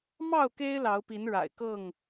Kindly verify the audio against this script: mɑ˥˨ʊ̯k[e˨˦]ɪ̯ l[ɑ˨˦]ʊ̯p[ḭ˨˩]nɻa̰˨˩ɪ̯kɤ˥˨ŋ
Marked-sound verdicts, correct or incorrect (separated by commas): incorrect, correct, incorrect